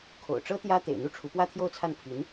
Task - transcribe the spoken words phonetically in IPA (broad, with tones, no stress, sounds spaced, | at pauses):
kʰ o̰˨˩ ʊ̯ ʈ͡ʂ ɤ˥ t̪ j ä˥ t̪ ḛ˨˩ ɪ̯ n̪ u˥˩ ʈ͡ʂʰ u˧˥ p w ä˥ t̪ʰ j o˥˧ ʊ̯ t͡sʰ a˥˩ n pʰ i˧˥ n